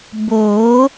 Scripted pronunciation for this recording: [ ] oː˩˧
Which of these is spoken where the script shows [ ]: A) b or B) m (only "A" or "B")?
A